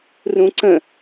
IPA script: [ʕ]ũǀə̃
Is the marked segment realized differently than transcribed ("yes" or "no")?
yes